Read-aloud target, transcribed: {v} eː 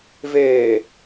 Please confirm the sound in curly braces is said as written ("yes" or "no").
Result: yes